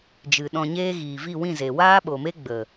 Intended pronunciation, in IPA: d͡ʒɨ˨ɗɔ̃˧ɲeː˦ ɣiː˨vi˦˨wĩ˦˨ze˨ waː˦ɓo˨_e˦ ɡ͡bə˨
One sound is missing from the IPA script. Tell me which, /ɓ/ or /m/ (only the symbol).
m